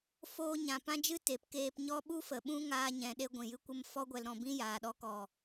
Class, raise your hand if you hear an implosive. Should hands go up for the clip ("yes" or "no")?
yes